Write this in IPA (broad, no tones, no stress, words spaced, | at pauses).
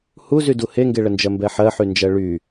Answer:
huzydu heŋɡeɭənd͡ʒɜ mbɛħɜħynd͡ʒɜ ɭy